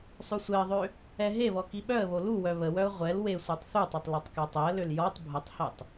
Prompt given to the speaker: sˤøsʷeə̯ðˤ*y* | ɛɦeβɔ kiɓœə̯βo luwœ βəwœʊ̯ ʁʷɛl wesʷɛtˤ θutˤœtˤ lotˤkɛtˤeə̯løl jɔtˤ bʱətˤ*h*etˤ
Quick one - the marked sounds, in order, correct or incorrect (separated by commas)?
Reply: incorrect, correct